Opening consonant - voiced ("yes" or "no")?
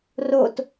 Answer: yes